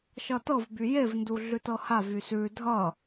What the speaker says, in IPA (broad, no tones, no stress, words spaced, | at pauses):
ʃʌtɤvby jevndu ɮʉtɤhavy sʉ dʱʌ